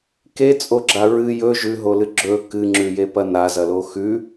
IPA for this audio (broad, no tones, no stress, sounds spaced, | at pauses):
k e t͡sʼ o ɡ͡ǁ a ɹ ɨ j ɵ ʒ ʉ ɦ o l ɨ ɡ͡ǁ ɵ k ɨ ŋ͡ǁ ʉ j e p ɐ n a z ɐ l o x ʉ